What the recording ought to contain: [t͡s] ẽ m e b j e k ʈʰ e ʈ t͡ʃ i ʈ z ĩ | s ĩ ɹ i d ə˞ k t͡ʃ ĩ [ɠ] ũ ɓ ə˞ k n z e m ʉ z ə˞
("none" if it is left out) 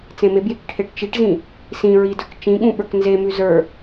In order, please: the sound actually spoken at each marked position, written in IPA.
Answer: t͡s, ɠ

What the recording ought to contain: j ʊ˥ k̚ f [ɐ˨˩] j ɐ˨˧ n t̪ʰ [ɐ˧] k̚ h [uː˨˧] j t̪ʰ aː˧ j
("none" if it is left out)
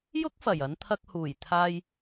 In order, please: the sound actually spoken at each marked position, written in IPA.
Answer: ɐ˨˩, ɐ˧, uː˨˩

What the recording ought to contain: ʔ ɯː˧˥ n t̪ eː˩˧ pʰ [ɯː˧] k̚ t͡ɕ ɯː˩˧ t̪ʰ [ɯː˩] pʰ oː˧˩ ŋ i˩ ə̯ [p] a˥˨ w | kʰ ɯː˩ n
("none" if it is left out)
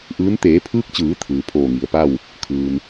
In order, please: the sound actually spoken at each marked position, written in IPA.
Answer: ɯː˧, ɯː˩, p

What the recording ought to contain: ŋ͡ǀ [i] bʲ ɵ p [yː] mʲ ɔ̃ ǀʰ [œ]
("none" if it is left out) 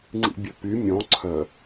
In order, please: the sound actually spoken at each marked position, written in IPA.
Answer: ḭ, y, œ

